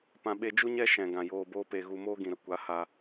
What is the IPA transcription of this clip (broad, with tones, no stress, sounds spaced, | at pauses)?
p ã˨ ɓ e˧ d͡ʒ u˦ ɲ ɛ˦ ʃ ɛ̃˨ ɡ ã˨ j oː˧ b oː˦ p e˧ ɣ u˧ m oː˦ ɡ ĩ˨ ɾ ə˦ kʷ a˨˦ h a˧